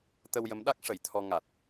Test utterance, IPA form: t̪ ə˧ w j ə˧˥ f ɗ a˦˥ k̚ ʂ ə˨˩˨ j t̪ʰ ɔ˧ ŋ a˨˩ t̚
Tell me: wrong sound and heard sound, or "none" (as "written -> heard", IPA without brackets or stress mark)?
f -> m